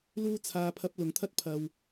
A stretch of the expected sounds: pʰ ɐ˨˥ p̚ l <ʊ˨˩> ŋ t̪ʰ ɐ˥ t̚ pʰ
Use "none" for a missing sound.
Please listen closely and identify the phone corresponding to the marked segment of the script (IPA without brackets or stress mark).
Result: ʊ˨˩